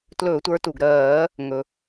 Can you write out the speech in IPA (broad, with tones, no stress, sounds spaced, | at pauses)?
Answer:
t l ɵː˧˩˧ tʷ ə˞˨˦ t u˩ ɡ ɾ ɜː˧˩˧ | ŋ ɵ˩